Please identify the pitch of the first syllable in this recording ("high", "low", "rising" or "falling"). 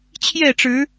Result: falling